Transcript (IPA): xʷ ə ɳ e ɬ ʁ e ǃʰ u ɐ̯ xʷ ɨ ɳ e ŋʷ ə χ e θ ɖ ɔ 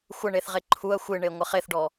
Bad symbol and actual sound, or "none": ɬ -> θ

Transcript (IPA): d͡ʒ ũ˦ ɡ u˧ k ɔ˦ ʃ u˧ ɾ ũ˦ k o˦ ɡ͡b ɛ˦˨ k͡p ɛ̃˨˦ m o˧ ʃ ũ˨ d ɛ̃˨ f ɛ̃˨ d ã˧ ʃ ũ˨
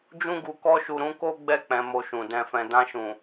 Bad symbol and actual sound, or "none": none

